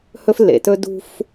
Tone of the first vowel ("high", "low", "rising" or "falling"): high